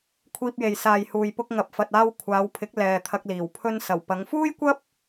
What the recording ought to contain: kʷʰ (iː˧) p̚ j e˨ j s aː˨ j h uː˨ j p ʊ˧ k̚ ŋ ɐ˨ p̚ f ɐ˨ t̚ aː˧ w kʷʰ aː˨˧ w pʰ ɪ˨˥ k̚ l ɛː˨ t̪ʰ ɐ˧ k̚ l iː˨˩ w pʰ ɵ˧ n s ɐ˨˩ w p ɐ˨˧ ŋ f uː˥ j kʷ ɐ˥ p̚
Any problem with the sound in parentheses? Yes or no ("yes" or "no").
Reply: no